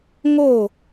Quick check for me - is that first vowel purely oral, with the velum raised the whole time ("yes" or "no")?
yes